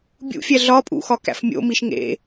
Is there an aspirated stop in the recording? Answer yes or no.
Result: no